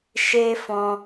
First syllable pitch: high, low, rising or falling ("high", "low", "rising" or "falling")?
high